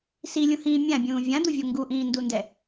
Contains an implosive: no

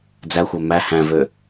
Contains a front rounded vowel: yes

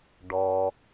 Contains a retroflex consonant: yes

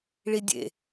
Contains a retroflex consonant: yes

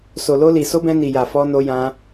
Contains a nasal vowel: yes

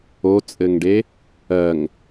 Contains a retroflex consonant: yes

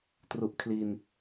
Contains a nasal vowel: no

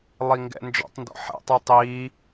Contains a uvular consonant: no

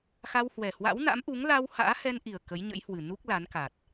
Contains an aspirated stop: no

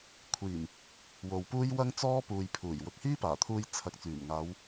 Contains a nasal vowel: no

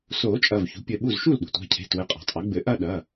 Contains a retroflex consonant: no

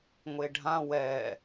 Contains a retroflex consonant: yes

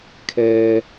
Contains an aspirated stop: yes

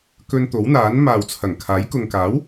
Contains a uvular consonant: no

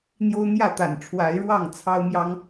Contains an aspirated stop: yes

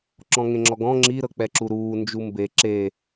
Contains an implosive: no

